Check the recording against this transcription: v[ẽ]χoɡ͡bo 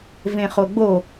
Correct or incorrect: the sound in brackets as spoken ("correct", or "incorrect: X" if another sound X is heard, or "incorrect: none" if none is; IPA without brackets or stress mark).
correct